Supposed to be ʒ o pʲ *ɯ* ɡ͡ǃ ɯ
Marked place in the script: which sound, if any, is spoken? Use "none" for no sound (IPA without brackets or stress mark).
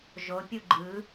u